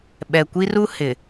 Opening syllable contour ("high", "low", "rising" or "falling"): low